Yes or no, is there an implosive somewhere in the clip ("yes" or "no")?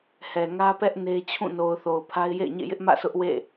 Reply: no